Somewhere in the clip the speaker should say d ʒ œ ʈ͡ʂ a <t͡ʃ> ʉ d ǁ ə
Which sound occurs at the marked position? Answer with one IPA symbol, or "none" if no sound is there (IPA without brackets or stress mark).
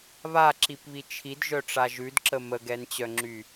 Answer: ʒ